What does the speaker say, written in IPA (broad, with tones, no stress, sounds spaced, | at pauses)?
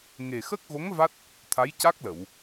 ŋ e˨˩ x ə˦˥ k̚ ɣ o˧˥ ŋ v a˦˥ t̚ | t̪ʰ a˧˥ j c a˦˥ k̚ l ə˨˩˨ w